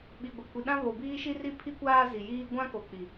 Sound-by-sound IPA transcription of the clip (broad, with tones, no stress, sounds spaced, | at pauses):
ɓ i˨ ɡʷ e˨ kʷ i˨ ɗ ã˦ β o˨ b iː˦ ʃ i˦ r i˦ pʰ i˦ kʷ aː˦ z i˨ j iː˦ ɡʷ ã˦ k o˨ k͡p i˨